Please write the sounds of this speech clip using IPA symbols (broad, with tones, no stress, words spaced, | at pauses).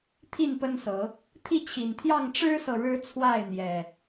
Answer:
t̪ʰi˥˨npə˦nsɤ˨˦ | t̪ʰi˥˨t͡ɕʰi˨˩nt̪ʰjɑ˥˨ŋ ʈ͡ʂɻ̩˦sɤ˨ ɻɻ̩˦t͡sʰwa˥˨ɪ̯n̪jɛ˨˩